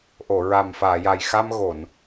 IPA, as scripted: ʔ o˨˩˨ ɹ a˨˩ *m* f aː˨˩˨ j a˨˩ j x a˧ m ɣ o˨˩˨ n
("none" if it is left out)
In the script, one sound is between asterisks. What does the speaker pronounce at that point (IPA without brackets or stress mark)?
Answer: m